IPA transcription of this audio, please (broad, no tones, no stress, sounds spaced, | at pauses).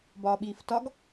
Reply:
b ɒː ɓ iː f t ɒ ɡ